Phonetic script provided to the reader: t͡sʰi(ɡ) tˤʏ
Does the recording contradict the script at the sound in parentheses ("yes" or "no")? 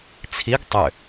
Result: no